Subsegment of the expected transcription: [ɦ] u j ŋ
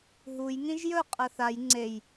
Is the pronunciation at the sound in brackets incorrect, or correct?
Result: correct